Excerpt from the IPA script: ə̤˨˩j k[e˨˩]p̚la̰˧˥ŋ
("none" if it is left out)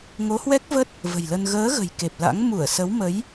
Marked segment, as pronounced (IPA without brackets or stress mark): e˨˩